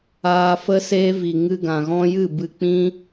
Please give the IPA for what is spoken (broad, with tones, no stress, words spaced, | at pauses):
aː˧fə˦seː˦vi˨ ŋɨ˧ɡã˨ɣɔ̃˦ jɨ˦˨bɨ˧k͡pĩ˦